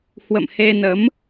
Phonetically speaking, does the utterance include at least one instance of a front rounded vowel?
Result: no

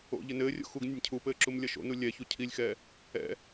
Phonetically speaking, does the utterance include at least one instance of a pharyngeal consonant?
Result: no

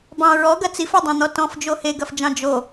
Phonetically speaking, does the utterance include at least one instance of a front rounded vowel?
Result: no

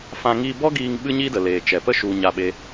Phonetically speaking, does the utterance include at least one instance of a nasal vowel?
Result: yes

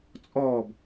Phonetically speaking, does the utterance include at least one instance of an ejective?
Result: yes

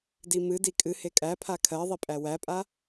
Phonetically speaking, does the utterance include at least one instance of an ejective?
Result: yes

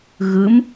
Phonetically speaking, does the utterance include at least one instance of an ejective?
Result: no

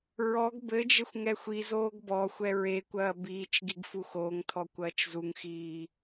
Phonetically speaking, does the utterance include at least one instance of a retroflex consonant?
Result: no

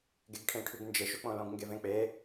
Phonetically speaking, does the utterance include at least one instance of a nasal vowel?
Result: yes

